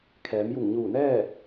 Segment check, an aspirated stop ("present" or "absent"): present